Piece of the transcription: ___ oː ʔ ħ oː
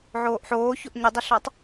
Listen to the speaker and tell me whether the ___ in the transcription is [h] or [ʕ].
ʕ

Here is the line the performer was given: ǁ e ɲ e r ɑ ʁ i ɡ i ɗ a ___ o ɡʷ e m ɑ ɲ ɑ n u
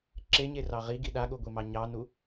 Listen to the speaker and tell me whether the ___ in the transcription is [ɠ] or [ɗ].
ɠ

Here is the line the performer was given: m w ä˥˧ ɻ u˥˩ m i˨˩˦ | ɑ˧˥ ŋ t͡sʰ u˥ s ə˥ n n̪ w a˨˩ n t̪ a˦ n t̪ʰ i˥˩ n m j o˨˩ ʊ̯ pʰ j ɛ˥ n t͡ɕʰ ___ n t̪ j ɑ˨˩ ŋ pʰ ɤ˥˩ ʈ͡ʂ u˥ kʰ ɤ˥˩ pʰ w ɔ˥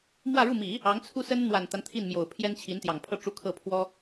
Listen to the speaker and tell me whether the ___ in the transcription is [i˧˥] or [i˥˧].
i˧˥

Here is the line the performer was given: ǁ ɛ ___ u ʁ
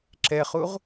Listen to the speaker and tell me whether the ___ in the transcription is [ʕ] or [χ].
χ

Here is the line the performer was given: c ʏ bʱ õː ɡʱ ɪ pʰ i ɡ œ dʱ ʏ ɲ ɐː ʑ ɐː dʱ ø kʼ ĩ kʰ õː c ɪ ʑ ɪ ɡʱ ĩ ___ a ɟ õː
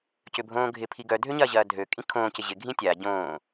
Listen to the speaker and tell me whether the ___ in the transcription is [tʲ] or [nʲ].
tʲ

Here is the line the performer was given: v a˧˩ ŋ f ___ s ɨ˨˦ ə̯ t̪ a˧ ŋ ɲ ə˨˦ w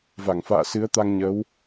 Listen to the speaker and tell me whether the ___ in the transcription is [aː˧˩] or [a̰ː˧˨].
a̰ː˧˨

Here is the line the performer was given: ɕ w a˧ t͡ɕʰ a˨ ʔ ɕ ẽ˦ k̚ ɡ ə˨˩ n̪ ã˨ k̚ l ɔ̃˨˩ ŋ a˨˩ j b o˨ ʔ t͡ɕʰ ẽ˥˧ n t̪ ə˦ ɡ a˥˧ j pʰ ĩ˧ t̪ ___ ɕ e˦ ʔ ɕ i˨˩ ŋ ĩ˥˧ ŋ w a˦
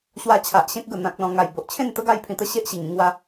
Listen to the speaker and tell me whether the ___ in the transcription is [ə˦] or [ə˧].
ə˦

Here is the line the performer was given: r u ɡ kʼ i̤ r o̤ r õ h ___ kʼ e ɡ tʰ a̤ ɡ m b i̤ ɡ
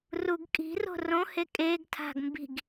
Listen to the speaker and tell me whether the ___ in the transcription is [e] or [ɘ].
e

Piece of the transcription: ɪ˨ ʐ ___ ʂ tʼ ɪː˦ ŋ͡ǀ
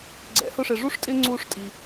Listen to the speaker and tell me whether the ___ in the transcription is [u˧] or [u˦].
u˦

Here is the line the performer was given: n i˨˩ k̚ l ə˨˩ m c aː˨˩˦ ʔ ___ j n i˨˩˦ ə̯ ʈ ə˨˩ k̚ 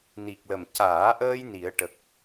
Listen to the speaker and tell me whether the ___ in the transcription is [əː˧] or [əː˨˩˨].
əː˧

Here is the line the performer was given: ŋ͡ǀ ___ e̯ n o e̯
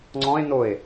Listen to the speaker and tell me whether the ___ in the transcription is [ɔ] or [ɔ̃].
ɔ̃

